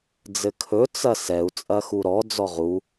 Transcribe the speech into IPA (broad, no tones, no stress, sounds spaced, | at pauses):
d͡z ɘ kʰ ɵ t͡s ɐ s ɛ u̯ t͡sʼ ɐ x u ɾ ɔ d͡z ɔ ʁ u